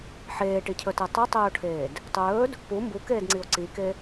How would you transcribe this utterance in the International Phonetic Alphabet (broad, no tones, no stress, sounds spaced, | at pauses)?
ħ eː ʈ i cʰ ɵ t e tˤ ɵ tˤ ɵː o̯ ʈʰ eː d | tˤ ɵː d | p u m b u k eː d ŋ͡ǀ i o̯ ǀ i k e